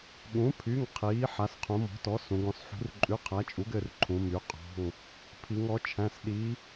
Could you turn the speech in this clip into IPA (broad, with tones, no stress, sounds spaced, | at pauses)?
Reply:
ɠ ũ˩˥ pʰ y˩˧˩ ŋ qʰ iː˩˥ ħ a˩˧ s qʰ ũ˩˧ m ɔ̤˩˥ t ɔ˩˥ s ũ˩˧ ɡ ɔ̃˩˥ s ħ ṳ˩˥ r ǃʼ ʉ˩˧˩ qʰ æ˩˥ t͡ʃʼ u˩˥ ɡ ɘ˩˧˩ r ǃʰ ũ˩˧ m y˩˥ qʼ ɔ̤˩˧˩ ŋ | pʰ i˩˧ ŋ ɔ˩˥ t͡ʃʰ æ̃˩˧˩ s ɗ i˩˥